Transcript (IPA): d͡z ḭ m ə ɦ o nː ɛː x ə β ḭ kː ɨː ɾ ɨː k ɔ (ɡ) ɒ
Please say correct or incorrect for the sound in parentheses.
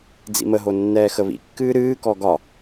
correct